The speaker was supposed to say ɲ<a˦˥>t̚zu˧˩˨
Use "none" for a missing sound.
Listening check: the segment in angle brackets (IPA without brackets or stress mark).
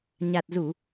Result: a˨˩